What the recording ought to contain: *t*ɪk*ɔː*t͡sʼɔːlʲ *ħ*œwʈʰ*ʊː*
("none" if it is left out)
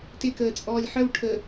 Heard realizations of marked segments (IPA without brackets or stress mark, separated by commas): t, əː, ħ, əː